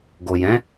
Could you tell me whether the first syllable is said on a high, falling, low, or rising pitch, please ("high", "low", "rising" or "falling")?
low